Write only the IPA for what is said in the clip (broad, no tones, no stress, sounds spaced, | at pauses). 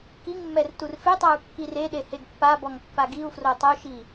k i ŋ mː ɛ r t u r f e tˤ a u̯ kː i r e ɗ e h e ɡ pː a b ɔ ŋ pː a ɡ i u̯ f r o tˤ o ʃ i